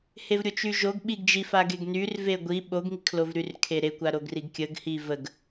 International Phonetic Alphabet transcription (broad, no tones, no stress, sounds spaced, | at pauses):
h e v ɾʲ o t͡ʃ y ʒ o ɡ ɓ i ɡ d͡ʒ i f a ɡ e ɡ n y r v e ɡʷ i ɓ o ɡ ŋ i kʰ l o v ɾ y r kʰ e ɾ e kʷ a ɾ o ɡ r i ɡ kʲ ə ɡ h i v ə ɡ